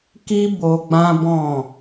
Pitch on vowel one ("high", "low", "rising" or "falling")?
high